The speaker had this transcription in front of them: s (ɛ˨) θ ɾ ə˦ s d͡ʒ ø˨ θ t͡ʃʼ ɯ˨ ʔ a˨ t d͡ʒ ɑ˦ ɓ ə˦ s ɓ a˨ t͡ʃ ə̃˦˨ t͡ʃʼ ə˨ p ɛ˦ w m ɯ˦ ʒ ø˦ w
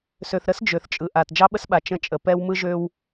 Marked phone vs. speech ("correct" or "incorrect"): incorrect